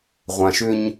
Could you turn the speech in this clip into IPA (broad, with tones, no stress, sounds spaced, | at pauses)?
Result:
ʁʷ ã˨ ʃ ʏ˦ ɲ